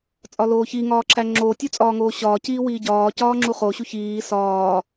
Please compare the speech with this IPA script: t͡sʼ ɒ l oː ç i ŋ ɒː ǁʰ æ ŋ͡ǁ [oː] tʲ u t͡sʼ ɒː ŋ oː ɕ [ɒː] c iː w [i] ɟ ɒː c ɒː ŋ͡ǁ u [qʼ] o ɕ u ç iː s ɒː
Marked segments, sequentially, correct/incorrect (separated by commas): correct, correct, incorrect, incorrect